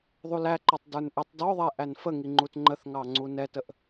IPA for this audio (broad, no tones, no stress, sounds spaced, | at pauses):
ðˤ u l æ ǃ ɔ tˤ d ə˞ n ʔ ɛ tˤ d ɔ ðˤ ɛ ʔ æ n f ə ŋ i ŋ͡ǃ u t ŋ͡ǃ ə θ ŋ ɑ ŋ͡ǀ u n ɛ t ə ʔ